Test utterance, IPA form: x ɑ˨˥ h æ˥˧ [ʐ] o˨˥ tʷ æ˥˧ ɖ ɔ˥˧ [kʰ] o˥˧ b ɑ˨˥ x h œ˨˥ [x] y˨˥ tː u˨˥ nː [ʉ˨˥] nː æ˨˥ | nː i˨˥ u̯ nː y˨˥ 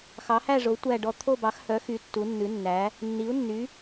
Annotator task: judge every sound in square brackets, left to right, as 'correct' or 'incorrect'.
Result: correct, incorrect: t̪ʰ, correct, correct

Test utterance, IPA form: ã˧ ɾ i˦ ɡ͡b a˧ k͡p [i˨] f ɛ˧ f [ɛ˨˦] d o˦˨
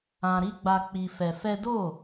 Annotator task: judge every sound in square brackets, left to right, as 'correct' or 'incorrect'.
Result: incorrect: i˧, incorrect: ɛ˦

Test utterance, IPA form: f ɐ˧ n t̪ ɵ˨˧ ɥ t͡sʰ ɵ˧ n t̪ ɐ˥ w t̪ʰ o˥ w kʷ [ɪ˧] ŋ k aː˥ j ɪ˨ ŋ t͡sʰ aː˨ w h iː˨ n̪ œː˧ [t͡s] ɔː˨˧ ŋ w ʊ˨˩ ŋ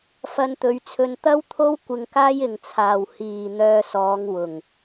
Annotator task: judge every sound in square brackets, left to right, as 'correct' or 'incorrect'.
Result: correct, incorrect: s

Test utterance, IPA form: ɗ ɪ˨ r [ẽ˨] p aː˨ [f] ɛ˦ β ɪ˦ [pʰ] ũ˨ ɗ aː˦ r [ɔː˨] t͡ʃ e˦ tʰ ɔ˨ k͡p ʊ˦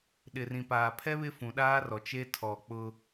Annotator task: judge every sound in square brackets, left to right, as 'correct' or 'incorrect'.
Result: incorrect: ĩ˨, incorrect: pʰ, incorrect: f, incorrect: ɔ˨

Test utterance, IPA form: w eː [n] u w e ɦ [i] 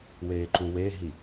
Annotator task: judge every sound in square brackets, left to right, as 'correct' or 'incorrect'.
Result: incorrect: ǃ, correct

